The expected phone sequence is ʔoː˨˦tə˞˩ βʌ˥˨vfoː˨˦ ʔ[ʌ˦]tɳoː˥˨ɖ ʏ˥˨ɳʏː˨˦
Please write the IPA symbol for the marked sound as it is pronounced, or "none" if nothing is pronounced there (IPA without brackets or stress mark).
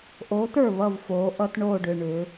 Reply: ʌ˦